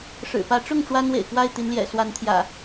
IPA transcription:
ʂ ɻ̩˨˩ p ä˨˦ ʈ͡ʂ ʊ˥˨ ŋ ʈ͡ʂ w a˦ n w ḛ˨˩ ɪ̯ k w a˥˨ ɪ̯ t̪ i˨˦ n l j ɛ̰˨˩ s w a˨˦ n t̪ʰ j ä̰˨˩

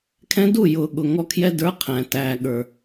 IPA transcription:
kʰ ɛ̃˧ d u˦˨ j ʊː˨ ɠ ʊ˨ ŋ ɔ˧ kʰ j ɛ˧ d ə˞˨˦ qʰ æ̃˨ t æː˨ ɠ ə˞˨

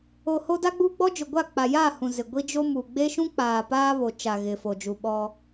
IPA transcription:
o˨ h o˦ d a˦ ɡ͡b uː˦ ɡ͡b ɔ˦ d͡ʒ ʊ˨ ɡʷ a˦˨ k͡p a˨ j aː˦˨ h ũ˨ z ɪ˨ ɡʷ i˦ d͡ʒ o˦ m u˨ ɡ͡b e˦ ʃ ũ˦ k͡p aː˨ p aː˦ β o˨ t͡ʃ a˨ ɣ ɪ˨ f o˨ d͡ʒ u˨ ɓ ɔ˦

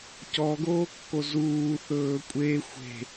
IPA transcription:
c ɔ ɡ oː kː o z uː θ ɵː kʷʼ e xʷ e̤

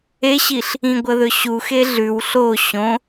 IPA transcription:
e ɕ i ɬ | ĩ ɡʷ ɐ ð ɵ ɕ u x e ɮ ʉ w ɬ o ɕ õ

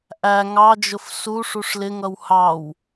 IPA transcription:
ʔ æ ŋ ɑ d͡ʒ ʊ f s u ʂ u ʂ l ɪ ŋ ʌ w h ɑ w

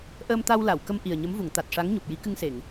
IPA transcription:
ʔ əː˧ m t̪ a˧ w l a˨˩˨ w k ə˧ m ʔ i˨˩ ə̯ ɲ ə˧˥ m v u˨˩˨ ŋ t̪ a˨˩ t̚ ʂ a˧˥ ŋ ɲ u˨˩ p̚ j i˧˥ k ɨ˧ ŋ s e˨˩˨ ŋ

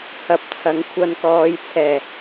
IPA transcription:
h ɐ˨˥ p̚ t͡sʰ ɐ˨˥ ŋ kʷʰ ɐ˧ n k ɔː˨˧ j t͡sʰ ɛː˨˩

